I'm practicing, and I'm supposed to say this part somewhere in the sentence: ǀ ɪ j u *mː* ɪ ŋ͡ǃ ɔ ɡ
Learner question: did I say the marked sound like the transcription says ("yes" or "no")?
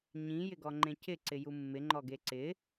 yes